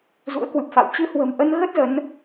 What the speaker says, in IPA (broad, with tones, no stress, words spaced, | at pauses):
zṵ˧˥ə̯kwɨ˨˩p̚fa̰˧˨w t͡ɕɨ˧hwə̤˨˩mʔə˧nɣə˦˥t̚ zə˨˦n